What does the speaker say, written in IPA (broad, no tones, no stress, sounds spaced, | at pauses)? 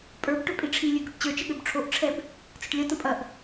pʼ ə˞ b ʈ ø pʼ i ʈ͡ʂʰ i lʲ ø ɡ ø ʈ t͡ɕ ə˞ t͡ʃ ə ɠ ø b ʈ͡ʂʰ o ʔ ʈ͡ʂʰ ɛ b | t͡s ə ʈ lʲ ɐ t ə̃ pʼ ɐ ʔ